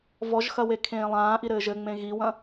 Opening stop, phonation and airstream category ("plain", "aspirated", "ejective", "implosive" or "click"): aspirated